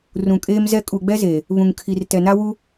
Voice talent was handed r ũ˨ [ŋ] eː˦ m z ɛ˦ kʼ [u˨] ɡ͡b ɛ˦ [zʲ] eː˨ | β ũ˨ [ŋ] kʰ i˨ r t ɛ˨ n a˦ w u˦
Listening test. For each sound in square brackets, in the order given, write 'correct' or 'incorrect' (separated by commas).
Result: incorrect, correct, incorrect, correct